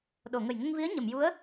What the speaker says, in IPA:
ɗo˨˩˨ŋə˨˩jŋə˧ŋvi˧˥ə̯ ɲə˨˩˨mju˧˥ə̯

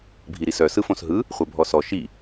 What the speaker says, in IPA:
bʱiɾisœ sɯfõsɦɯ | χʷœbʱɔsɔ ʃi

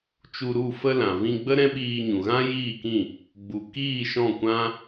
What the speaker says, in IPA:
t͡ʃu˧ɾu˦˨ fə˧lã˨ vĩ˧ ɡ͡bə˦ ɾɛ̃˦ɓiː˧ ɲũ˨ ɣã˦jiː˦˨kĩ˦˨ | ɡ͡bu˨ kiː˦˨ʃɔ̃˦˨ kʷã˦

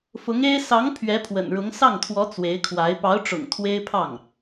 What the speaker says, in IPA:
fʊ˧˥ŋe˥ɪ̯ sɑ˧˥ŋ pʰɥɛ˧˥pʰwə̰˨˩nɻʊ˧˥ŋ sɑ˥˩ŋt̪ʰwɔ˧˥ t͡swe˧˥ɪ̯kʰwa˧˥ɪ̯ pɑ˧˥ʊ̯ʈ͡ʂʊ̰˨˩ŋ t̪ʰwe˥ɪ̯pʰɑ˥˩ŋ

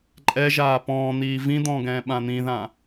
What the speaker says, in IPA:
ǃʼɛʒaː pɔ̃ːn̪iː vĩd̪ɔ̃ː ɡɛ̃ːɓãn̪ĩðã

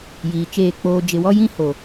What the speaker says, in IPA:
jiː˨t͡ʃeː˦˨k͡poː˦ d͡ʒɪ˨wɔ˦jĩ˦ ho˨

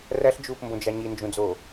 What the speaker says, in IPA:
ræɬd͡ʒuːpmbõd͡ʒɑ ɲind͡ʒũd͡zoː

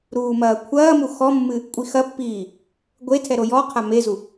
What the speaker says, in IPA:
ɾuːmɐːkʷʰɐːmu xɔmːɨ | kʷʼixɐpːiː | ɡʷe tʰɛɾojɔqʰa mezu

